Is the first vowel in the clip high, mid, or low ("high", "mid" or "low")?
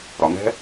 low